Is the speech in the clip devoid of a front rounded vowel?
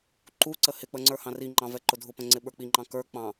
yes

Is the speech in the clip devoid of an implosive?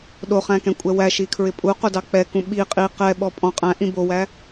no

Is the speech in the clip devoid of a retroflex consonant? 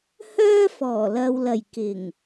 yes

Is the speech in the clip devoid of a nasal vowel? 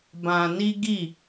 no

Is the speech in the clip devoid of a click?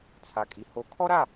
yes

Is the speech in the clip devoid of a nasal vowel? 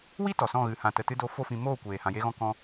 no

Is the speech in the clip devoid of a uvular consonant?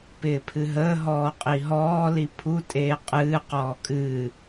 no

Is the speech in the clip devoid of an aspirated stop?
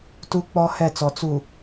yes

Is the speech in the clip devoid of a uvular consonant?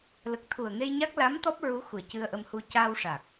yes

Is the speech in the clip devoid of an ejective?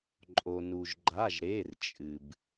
no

